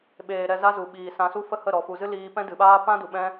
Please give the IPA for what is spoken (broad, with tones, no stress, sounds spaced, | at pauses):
ɓ eː˨ ɾ ɛ˧ z a˦ z u˨ ɓ iː˨ s ã˧ s u˦ f ə˦ h ə˦˨ ɾ ɔ˨ f u˨ z ɨ˦ l iː˦ p ɛ̃˦ d ɨ˨ ɓ aː˦ p ã˦ d u˨ ɓ ɛ̃˦